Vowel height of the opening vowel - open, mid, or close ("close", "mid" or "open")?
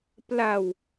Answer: open